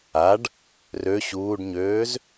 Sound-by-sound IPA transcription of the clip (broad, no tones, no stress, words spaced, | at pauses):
aɖ | rø ɕuːɖɲøːz